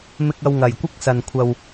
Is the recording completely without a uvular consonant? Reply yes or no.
yes